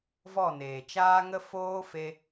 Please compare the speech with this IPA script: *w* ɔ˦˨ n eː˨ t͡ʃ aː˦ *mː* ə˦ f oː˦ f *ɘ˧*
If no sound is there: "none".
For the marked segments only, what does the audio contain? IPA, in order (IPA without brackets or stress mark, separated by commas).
v, ŋ, e˧